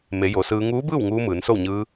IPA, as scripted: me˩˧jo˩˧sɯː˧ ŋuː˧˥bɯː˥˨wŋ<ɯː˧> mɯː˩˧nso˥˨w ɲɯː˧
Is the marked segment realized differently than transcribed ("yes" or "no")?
yes